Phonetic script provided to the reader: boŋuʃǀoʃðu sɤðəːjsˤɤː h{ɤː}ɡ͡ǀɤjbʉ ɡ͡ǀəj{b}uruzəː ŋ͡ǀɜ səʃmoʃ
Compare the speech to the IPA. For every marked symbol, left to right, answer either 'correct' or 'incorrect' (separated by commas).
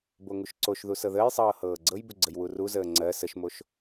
correct, incorrect